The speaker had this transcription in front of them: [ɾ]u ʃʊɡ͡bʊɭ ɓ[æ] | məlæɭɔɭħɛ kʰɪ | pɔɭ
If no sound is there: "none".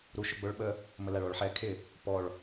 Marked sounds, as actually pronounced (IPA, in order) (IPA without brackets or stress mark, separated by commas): ɾ, ə